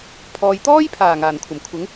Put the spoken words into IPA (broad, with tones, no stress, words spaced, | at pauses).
pʰɔː˨jt̪ɔː˥jpʰaː˨˩ ŋaː˨˩nkʷʰɐ˨˩mkʷʰɪ˨˥ŋ